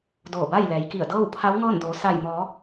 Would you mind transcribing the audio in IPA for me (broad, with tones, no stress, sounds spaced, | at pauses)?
d oː˧˩ b a˥˨ j l ɛː˩˧ j k i˧˩ ə̯ d ɤː˥˨ w pʰ a˧˥ w ŋ ɤː˥˨ n d oː˩˧ s a˧˩ j m ɔː˩˧